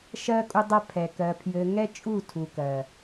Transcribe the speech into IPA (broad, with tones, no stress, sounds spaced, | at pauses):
ʃ ɜ˧ kʼ u˧ dˤ ɜ˧ pʰ ɛ˨ k ɜ˨ pʰ j ɘ˨ ŋ ɛ˧ t͡ʃʼ u˦˨ tʰ u˨ k ɜ˨